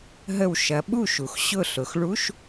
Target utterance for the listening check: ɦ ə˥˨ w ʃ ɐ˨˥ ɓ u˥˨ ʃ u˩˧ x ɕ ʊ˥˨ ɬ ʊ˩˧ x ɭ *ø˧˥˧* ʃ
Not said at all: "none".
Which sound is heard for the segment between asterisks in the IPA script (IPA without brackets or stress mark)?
u˧˥˧